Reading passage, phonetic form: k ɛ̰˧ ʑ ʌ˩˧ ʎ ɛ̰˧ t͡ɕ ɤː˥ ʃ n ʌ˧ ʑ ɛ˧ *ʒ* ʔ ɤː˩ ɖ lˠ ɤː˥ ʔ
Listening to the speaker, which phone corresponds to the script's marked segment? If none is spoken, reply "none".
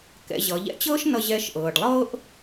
ʃ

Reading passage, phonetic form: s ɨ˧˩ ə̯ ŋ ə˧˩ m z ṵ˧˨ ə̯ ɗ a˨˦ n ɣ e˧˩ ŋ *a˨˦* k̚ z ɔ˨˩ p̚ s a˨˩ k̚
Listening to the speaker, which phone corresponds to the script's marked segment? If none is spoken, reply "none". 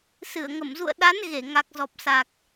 a˨˩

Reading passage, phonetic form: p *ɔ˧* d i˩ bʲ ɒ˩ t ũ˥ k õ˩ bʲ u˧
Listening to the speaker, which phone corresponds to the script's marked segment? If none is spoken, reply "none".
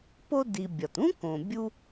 o˧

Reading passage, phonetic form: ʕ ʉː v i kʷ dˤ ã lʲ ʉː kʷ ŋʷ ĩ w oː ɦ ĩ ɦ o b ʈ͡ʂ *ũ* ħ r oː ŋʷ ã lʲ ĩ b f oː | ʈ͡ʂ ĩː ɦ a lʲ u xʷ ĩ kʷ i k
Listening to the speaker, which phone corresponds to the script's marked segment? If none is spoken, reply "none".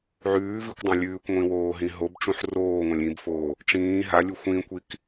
ũ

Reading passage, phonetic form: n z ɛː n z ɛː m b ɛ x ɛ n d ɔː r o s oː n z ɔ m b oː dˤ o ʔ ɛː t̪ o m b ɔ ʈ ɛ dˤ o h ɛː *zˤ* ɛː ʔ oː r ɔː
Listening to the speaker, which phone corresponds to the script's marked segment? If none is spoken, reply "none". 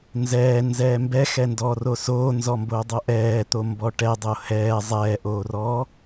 zˤ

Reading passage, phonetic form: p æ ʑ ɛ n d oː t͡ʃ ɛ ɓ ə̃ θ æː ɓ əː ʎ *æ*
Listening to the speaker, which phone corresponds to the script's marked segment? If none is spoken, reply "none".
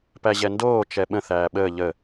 ə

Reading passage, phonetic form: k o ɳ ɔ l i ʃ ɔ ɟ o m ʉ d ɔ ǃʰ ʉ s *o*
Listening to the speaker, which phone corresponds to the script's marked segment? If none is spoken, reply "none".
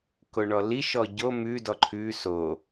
o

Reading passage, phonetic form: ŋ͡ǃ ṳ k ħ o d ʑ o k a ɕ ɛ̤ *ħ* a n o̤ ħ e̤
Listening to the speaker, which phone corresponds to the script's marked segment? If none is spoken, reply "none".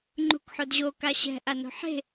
ʔ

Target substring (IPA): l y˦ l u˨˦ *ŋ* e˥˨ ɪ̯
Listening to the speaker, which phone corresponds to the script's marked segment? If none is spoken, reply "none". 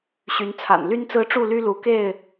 k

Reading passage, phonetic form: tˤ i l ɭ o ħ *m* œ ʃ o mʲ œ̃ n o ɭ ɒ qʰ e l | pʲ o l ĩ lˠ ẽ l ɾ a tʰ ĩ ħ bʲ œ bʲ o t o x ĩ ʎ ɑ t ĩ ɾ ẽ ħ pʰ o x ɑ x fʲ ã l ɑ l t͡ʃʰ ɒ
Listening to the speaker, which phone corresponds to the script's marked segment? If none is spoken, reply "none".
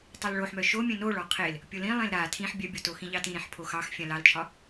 m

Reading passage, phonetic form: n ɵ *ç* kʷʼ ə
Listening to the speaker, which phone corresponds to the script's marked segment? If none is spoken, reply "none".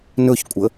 ç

